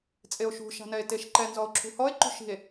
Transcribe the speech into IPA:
t͡sʼ e o̯ ʃ ṳ ʃ a̤ n ɛ e̯ t e ʃ ǃ ɛ n z ɔ o̯ ǁʰ ṳ h ɔ e̯ ǃ ṳ ʃ i̤ e̯

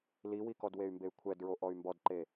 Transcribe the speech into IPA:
l i w i k ɔ d w e y̯ m b e y̯ kʷʰ ɛ d ɹ o ʔ ɔ y̯ m b ɔ d ǃ e

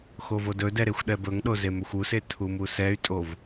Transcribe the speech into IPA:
x o v o d ɵ d ɛ ɾ e xʷ ɗ ɛ b ɵ ŋ ɗ o z e m ɵ xʷ u s e tʰ u m u s ɛ y̯ tʼ o v

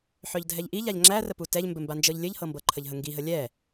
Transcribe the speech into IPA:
ħ œ ʎ dʱ ɛ ʎ ʔ i ʎ a ʎ ŋ͡ǁ æ r ə p u t ɛ ʎ m b ɘ m b a n d͡ʒ ɤ ʎ lʲ ɘ ʎ h ɤ m b ɤ ǃʰ ə ʎ ɦ ə ŋ ɡ i ɦ ə lʲ ɛ

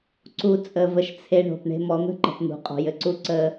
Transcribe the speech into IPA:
ǀ u˧ t͡sʼ ə˧ v ə˧ ʃ t͡sʰ e˧ ɳ o̤˨ p ɳ e̤˦ m ɔ˨˦ n̪ ə̤˦ ǃ ə̤˨ p n̪ ṳ˨ qʼ ɔ̤˨ j ɘ˨ ǀ u˧ ǀ ə˦

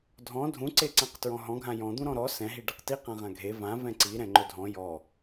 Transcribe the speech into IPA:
dʱ ɔ̃ dʱ ũ ǀ e ǀ ã q t ɹ ɔ̃ ɦ ɔ̃ ɡʱ ã j ɔ̃ d̪ ũ ɾ ɔ̃ ɾ ɔ s ɛ̃ ɦ i ɖ e q t i q ã ʁ ã ɡʱ e v ã v ɛ̃ ǀ i ɾ ɛ̃ ŋ͡ǃ ɵ dʱ ɔ̃ j ɔ

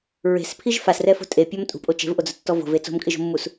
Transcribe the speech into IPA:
ɹ e̤ s pʰ i ʒ f a s r ɛ f o̤ tʼ e pʲ ɔ m tʼ ṳ pʼ o t͡ʃ e̤ v ʔ o d͡z ʊ tː ɔ v o̤ v e t͡s o̤ m kʼ ɪ ʒ o̤ mː u s

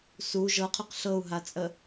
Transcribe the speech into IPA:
s u ʒ ɤ qʰ y q ɬ ɤ u̯ ɦ a t͡sʼ ə

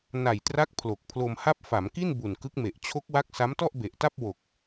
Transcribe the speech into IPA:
n a˨˩ j t r a˦˥ k̚ pʰ l o˨˩ k̚ pʰ l o˧ m h a˥˩ p̚ f a˩˦ m k i˥˩ n b u˨˩ n k ɯ˦˥ k̚ m e˨˩ ʔ t͡ɕʰ o˦˥ k̚ w a˦˥ k̚ s a˦˥ m t ɔ˥˩ ʔ b e˨˩ ʔ t a˥˩ p̚ w o˨˩ k̚

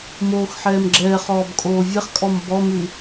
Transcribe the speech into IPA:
m oː x ħ ɛː m ɡ͡ǁ ɛː χ ɔː b kʼ oː vʲ ɛ χ kʼ ɔ m b ɔ m ʉ

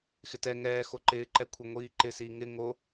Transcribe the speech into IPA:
x ɪ t ɛ ŋ ɛː x o ǃ ɪː ǃ ɛ kʷʰ ɛ ŋʷ iː ǃ ɪ s iː ŋ ɪ ŋ o

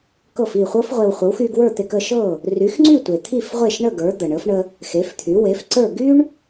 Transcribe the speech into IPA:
k ɤ˥˩ f i˥˩ χʷ ɤ˥ f ʁʷ e˧ w χʷ ə˩˥ w x y˧ ɡ w ə˞˥˩ t̪ e˧ k ə˧ ʃ ɤ˥˩ | r y˩˥ x ŋ͡ǀ y˥˩ tʷ e˩ t̪ʰ i˥˩ f ʁʷ e˥˩ ʃ ɳ ə˥˩ ɡ ə˞˩˥ d̪ ə˩ ɳ ə˩˥ f ɳ ə˧ | x e˩˥ f t̪ʰ y˩˥ w e˩˥ f ǀ ə˞˥˩ ɡ y˥ ɳ

